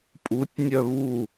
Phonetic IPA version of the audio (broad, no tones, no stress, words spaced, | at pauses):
pʼutʲnʲœ βu